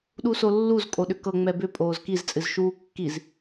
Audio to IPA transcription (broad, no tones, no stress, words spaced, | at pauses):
ɗusolːuz kʼoɗʏkɤ ŋ͡mɛbʏ pʼoːzkiz t͡sʼɨzʃuːkːiz